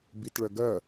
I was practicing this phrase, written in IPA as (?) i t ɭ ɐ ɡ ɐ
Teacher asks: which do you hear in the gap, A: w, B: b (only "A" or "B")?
B